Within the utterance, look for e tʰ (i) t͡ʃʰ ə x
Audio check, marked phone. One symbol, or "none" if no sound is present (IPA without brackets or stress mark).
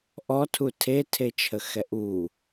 e